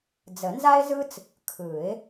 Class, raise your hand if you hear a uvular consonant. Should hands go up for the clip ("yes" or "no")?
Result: no